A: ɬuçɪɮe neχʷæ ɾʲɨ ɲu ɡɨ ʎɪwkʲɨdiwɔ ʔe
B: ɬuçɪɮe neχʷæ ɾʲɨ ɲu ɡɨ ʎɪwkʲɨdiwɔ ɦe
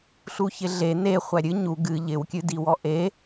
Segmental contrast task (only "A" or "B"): A